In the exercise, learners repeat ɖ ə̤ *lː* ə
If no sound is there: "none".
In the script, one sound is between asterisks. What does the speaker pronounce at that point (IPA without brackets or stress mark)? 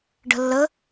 lː